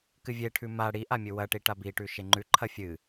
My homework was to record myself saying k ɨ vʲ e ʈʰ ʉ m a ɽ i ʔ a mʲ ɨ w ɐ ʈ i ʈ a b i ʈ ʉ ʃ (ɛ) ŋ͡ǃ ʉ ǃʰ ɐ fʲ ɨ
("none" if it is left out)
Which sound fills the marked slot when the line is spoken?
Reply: e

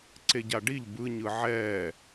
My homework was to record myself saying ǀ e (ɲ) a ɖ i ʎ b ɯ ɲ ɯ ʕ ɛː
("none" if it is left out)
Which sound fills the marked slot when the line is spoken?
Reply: ɟ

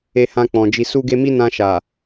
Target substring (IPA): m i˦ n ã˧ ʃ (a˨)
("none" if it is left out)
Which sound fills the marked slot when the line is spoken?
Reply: a˨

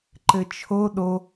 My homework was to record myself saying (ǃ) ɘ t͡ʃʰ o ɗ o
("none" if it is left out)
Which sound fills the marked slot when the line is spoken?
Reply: ǃ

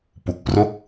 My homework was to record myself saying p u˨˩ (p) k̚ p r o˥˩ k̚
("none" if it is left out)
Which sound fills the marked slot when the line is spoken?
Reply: none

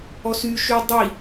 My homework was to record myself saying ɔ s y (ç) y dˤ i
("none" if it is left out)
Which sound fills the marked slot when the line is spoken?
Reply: ʃ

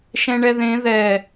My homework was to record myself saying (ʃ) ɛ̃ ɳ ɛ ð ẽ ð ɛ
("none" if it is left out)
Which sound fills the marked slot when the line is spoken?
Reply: ʃ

